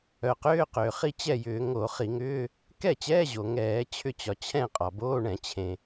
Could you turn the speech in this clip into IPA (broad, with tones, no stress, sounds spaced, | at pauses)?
œ˩ q ʏː˧˥˧ q ʏː˩ χ i˥˨ t͡ɕ ɛ˥˨ j ʏː˧˩˧ ŋ o˧˩˧ χ i˧˩˧ ŋ ʏː˧˥˧ | k ɛ˥˨ t͡ɕ ɛː˧˥˧ ʑ o˩ ŋ ɛː˧˩˧ t͡ɕʰ ʏ˥˨ t͡ɕ ɒ˩ t͡ɕʰ ɛ̃˥˨ qʼ ɒ˩ b oː˧˥˧ ɳ ɛ̃˧˩˧ t͡ɕʰ ẽ˩